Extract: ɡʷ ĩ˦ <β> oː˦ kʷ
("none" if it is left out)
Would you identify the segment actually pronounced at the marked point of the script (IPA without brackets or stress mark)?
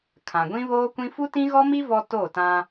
β